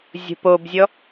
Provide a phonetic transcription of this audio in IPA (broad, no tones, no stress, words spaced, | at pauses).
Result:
zʲo̤pobzʲɔ